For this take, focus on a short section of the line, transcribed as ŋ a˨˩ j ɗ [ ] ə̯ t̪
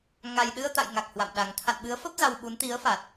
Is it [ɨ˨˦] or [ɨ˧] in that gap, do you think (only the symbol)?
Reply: ɨ˧